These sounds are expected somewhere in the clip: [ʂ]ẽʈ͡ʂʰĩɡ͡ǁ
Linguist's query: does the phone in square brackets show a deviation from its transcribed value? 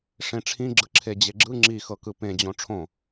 no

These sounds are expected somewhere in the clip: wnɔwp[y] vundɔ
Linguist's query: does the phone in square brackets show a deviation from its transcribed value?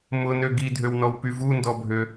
no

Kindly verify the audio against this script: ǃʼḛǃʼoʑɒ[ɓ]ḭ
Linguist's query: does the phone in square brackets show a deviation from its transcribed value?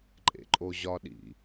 yes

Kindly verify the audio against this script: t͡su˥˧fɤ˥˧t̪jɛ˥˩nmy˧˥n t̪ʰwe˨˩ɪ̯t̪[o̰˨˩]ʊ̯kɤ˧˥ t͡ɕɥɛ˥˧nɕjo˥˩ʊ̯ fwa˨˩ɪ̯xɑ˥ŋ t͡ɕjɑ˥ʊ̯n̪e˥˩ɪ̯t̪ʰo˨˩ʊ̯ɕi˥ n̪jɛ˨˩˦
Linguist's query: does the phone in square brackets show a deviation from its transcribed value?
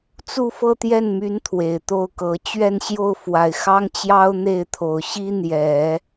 yes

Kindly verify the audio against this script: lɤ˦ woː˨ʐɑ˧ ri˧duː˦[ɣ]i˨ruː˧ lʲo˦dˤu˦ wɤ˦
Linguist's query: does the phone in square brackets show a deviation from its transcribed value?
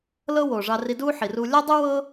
yes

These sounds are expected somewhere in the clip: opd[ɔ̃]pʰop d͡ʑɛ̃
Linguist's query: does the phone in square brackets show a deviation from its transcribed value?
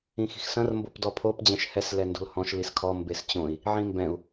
yes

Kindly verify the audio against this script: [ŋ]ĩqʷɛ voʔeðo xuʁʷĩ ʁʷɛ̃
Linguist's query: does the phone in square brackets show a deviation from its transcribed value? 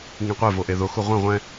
no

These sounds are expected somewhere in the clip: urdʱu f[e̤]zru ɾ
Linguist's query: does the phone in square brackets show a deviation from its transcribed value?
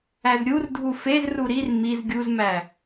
yes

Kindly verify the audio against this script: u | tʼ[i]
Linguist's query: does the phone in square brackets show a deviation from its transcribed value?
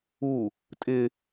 yes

